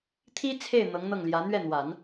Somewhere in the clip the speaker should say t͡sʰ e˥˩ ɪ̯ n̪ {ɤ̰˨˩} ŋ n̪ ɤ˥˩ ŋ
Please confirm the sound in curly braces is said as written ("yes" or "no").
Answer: no